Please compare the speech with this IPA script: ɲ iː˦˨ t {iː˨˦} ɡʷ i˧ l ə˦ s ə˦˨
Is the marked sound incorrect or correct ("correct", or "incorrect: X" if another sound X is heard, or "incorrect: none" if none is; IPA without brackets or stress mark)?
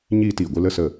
incorrect: iː˨